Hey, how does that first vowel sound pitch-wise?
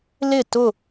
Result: falling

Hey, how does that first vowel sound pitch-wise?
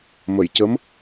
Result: low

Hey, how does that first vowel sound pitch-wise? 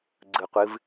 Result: low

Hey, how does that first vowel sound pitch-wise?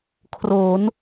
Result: rising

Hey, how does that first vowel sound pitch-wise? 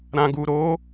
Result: low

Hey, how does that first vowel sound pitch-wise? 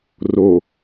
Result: low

